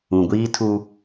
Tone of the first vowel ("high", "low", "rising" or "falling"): low